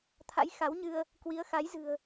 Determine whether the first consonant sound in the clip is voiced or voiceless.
voiceless